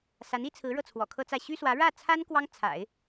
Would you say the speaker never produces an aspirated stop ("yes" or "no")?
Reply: no